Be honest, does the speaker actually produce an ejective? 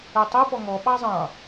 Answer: no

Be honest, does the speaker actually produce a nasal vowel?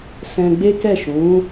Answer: yes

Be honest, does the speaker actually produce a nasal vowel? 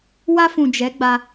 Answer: yes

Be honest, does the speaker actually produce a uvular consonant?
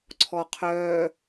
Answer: yes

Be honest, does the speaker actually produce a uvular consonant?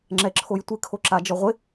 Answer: yes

